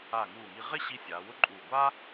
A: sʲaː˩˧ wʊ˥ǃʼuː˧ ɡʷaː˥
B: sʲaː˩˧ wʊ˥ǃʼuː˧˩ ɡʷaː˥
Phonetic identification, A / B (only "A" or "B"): B